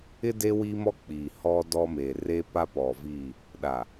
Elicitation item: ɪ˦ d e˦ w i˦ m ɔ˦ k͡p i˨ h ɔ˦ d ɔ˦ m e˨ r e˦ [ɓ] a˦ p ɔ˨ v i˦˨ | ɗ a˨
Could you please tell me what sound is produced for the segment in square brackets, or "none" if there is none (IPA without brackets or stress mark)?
p